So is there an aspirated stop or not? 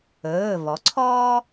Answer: yes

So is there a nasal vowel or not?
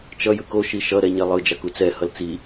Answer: no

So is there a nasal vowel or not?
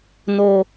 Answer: no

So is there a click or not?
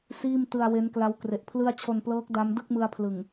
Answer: no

